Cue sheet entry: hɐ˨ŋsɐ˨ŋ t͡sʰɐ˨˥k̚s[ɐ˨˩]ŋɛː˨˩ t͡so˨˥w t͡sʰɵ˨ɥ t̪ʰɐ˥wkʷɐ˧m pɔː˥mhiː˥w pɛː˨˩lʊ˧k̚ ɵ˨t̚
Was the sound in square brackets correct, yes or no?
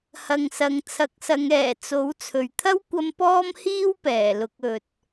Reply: no